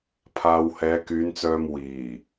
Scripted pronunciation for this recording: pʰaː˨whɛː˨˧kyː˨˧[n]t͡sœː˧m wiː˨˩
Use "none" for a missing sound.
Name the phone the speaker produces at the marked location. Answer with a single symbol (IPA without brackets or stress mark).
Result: n